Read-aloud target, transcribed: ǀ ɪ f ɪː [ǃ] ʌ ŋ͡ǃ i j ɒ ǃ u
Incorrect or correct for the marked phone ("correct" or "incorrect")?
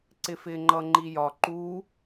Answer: incorrect